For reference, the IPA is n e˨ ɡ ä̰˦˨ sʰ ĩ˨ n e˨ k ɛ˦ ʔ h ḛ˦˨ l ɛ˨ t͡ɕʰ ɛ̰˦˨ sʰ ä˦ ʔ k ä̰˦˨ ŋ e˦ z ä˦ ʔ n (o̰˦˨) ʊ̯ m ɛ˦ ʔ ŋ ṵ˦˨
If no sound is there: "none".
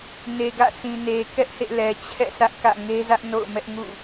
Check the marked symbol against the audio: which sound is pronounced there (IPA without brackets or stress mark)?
o̰˦˨